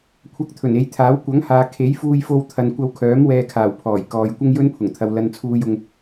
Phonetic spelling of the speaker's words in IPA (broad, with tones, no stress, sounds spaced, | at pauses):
kʷʰ ɐ˧ k̚ t̪ʰ ɵ˨˩ n e˨˧ j t̪ʰ aː˨˥ w kʷ ɐ˨˥ ŋ h aː˨ kʰ e˨˥ j f uː˧ j f o˧ w t̪ʰ ɐ˨ n kʷ ɐ˧ w kʰ œː˨˥ m w ɛː˧ kʰ aː˨˩ w pʰ ɔː˨˩ j k ɔː˨ j kʷ ɐ˥ ŋ j ɵ˥ n pʰ ʊ˨˩ ŋ t̪ʰ ɐ˨ w l ɐ˧ n t͡sʰ uː˧ j ʊ˧ ŋ